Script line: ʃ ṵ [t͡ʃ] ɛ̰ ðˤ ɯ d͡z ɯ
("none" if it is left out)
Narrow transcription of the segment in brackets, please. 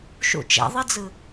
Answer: t͡ʃ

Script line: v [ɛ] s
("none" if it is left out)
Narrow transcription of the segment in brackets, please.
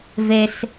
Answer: e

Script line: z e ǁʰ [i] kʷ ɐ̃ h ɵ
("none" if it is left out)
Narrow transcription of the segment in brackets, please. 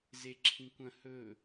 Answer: ĩ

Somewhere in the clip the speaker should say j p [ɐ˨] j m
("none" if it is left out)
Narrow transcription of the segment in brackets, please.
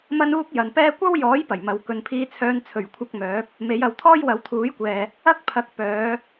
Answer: ɐ˨˩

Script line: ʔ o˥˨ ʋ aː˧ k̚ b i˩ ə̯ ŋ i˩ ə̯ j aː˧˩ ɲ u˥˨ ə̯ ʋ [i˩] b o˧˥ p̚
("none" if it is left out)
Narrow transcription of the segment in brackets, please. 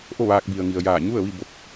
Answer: i˥˨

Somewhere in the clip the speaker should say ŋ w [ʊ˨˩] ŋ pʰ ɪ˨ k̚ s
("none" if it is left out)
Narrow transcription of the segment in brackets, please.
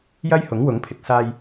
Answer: ʊ˨˥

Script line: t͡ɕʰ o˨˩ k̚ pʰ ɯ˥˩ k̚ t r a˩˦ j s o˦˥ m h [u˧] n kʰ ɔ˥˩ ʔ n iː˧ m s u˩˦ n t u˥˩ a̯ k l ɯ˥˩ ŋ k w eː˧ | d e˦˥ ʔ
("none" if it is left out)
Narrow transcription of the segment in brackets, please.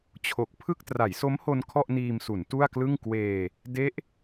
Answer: o˧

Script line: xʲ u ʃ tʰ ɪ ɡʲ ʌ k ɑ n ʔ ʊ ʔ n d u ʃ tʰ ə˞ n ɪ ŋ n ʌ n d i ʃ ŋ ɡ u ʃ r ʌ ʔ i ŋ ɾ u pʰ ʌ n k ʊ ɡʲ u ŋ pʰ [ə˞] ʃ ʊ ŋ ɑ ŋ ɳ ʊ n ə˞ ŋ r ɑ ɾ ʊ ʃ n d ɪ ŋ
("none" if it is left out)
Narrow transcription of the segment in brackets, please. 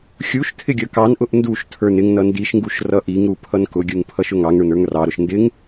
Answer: ʌ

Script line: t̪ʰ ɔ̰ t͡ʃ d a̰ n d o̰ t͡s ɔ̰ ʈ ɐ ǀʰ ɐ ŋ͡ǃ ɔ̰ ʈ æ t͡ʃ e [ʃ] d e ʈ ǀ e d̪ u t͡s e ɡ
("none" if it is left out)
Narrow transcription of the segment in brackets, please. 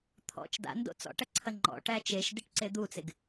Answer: ʃ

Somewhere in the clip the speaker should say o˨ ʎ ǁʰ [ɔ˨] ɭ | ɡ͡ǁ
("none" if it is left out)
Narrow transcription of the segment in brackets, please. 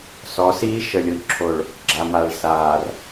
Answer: o˨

